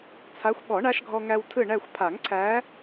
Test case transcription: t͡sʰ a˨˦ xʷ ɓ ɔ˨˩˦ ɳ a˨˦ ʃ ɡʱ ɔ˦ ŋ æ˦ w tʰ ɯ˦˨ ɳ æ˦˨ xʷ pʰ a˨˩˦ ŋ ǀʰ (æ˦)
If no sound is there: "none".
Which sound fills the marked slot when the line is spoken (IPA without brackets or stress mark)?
æ˨˦